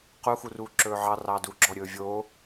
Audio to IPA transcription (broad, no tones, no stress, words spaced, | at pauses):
qu xuruːǁɵːʕɑ rɑːduːɡ͡ǁɔ ɾʲɵːvʲo